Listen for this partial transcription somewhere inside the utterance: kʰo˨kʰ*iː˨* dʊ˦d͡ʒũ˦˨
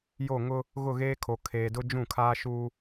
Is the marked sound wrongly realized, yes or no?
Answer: yes